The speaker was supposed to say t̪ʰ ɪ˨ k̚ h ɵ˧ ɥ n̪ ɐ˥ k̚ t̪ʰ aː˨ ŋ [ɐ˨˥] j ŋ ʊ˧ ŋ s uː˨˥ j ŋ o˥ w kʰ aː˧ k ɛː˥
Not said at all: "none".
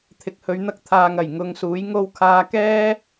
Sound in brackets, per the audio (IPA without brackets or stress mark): ɐ˨˩